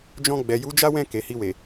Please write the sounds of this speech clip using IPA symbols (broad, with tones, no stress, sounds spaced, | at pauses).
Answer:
d͡ʒ ɔ̃˧ ɡ͡b ɛ˨ j u˨˦ d͡ʒ a˦ w ɛ̃˦˨ k e˨ h i˧ w e˨